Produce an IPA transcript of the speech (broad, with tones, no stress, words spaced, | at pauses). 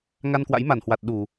ŋa˧nkwa̰˧˥jma˧˩nhwa˨˩t̚ ɗu˧˩˨